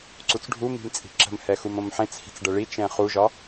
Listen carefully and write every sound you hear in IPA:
ǀ u t͡s ɖʱ u m i̤ m t͡sʼ i̤ ǁ ə̤ m h ɛ x u m õ m ħ ẽ t͡s h i̤ t͡s ɖ ə ɭ i t͡ʃ ɛ̃ χ u ʒ ɒ

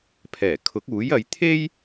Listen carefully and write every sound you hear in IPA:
pʰ ɛː˨˩ kʰ ʊ˨˥ k̚ uː˨˥ j ɐ˨˧ j t̪ʰ e˥ j

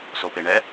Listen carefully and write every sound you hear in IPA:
s o p e ɳ ɛ

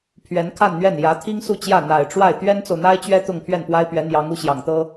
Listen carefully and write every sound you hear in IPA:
pʰ ɥ ɛ˧˥ n kʰ a˥˧ n n̪ ɥ ɛ˥˩ n j ä˧˥ t̪ʰ i˥ ŋ s u˥˧ t͡ɕ j ä˥˩ n̪ a˨˩ ɪ̯ ʈ͡ʂ w a˥˩ ɪ̯ t̪ ɥ ɛ˥ n t͡s o˨ ʊ̯ n̪ a˥ ɪ̯ t͡ɕ ɥ ɛ˥ t̪ ʊ˥˧ ŋ pʰ ɥ ɛ˥˩ n p w a˥ ɪ̯ p ɥ ɛ˧˥ n̪ j ɑ˧˥ ŋ u˧˥ ɕ j ɑ˨˩ ŋ t̪ ɤ˥

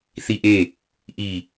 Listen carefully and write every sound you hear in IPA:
θ i ʔ e | ʔ i

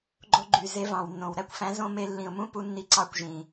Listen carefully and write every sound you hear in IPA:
ɡ͡ǃ o˧ ɡ͡ǃ y˨ z e˦ v ɑ̃˨ w nː õ˨ w ɾ æ˦ kʷ f æ̃˨˦ z õ˧ m e˧ lː ĩ˨ ʊ̯ m ũ˦ p u˧ nː i˧ ǀ ɑ˦ kʷ ʒ ĩ˨

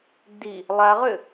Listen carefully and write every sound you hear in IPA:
d i | lˠ a ʁ ʏ

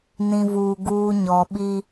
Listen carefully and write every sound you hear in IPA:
n ĩ˨ v uː˨ ɡ uː˦ ɲ ɔ˨ ɓ i˦

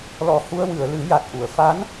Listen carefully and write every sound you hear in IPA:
l ɔ˨˩ h u˧ ə̯ w ɨ˨˩˨ ə̯ l ɨ˨˩˦ j a˨˩ t̚ ʔ u˨˩˨ ə̯ f a˧˥ n

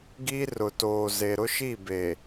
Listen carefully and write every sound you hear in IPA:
ɡ i˦ r ʊ˨ t oː˨ z e˨ ɾ ʊ˦ ʃ i˦˨ b e˨

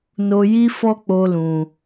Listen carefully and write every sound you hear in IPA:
n o˦ j i˦ f ɔ˦ k͡p o˦ l ũ˧

